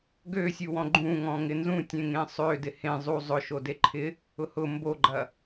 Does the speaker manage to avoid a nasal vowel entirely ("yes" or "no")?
no